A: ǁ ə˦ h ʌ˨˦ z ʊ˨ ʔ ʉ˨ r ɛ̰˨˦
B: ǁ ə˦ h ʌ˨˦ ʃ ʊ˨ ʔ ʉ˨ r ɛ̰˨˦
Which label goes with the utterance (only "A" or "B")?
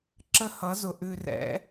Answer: A